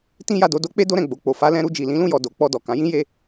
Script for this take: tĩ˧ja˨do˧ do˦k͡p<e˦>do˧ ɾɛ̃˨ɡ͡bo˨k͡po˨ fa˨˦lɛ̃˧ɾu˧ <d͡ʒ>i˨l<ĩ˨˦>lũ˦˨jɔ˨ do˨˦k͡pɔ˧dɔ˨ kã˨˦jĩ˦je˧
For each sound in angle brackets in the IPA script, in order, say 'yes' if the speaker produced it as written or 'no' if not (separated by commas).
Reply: yes, yes, yes